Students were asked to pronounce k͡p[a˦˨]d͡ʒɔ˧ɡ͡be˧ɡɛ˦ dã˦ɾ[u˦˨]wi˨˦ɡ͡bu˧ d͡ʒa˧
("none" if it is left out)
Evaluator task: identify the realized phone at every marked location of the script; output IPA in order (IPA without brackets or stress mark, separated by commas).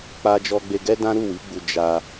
a˧, u˦˨